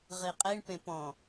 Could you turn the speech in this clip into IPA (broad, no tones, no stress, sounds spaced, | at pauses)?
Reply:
ʁ i qʼ e ɳ p ẽ p ɔ̃